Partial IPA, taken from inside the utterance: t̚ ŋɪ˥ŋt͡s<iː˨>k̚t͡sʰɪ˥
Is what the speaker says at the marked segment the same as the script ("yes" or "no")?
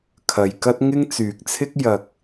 no